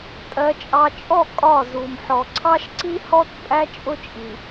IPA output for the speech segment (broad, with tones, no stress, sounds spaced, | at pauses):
tʼ ɜ˨ t͡ʃʼ ɑ˨ t͡ʃʼ ɔ˦˨ kʼ ɒ˦˨ z u˨ m ħ ɔ˨ ǀʰ ɑ˦ ʃ ǀ i˦ h ɔ˦ t pʼ æ˦ t͡ʃʼ ʊ˦ t͡ʃʼ i˨